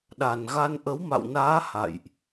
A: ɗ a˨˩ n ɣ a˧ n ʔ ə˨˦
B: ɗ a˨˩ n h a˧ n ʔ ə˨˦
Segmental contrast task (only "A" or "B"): A